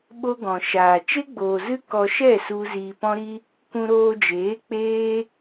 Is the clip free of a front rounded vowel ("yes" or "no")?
yes